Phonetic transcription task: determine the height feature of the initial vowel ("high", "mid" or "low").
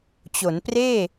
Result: mid